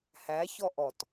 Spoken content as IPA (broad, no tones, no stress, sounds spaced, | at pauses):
h æ ç ɔ ʔ ɔ t